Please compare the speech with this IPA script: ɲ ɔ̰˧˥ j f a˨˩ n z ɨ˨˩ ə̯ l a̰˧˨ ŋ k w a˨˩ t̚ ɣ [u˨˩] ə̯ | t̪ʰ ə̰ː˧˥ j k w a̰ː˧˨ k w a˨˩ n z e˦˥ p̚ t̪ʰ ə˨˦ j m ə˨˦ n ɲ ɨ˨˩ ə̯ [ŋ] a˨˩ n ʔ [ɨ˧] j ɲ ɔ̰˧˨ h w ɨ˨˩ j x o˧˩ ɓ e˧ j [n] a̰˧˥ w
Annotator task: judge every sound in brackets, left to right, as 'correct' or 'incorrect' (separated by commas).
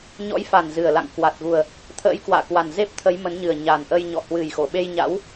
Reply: correct, incorrect, incorrect, incorrect